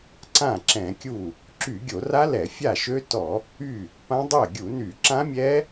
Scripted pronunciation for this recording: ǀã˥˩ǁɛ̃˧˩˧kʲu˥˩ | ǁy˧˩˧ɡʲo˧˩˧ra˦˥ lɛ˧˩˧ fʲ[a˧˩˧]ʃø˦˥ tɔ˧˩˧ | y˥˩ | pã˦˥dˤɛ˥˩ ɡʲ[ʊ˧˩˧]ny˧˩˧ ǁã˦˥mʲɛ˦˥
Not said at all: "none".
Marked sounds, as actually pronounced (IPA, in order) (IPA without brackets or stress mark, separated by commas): a˥˩, u˧˩˧